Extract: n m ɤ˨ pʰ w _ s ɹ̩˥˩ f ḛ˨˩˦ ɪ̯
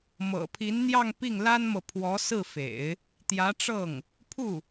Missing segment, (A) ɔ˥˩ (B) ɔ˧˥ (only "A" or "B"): B